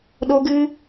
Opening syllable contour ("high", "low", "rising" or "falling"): high